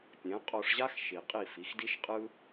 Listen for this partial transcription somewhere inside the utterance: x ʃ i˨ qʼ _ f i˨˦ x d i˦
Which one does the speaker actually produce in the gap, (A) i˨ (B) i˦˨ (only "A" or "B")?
B